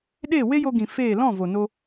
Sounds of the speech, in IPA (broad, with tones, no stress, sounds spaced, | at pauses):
ɗ e˦˨ w e˦ j o˧ ɡ ĩ˨ f eː˦˨ l ɔ̃˦˨ v o˨ n o˧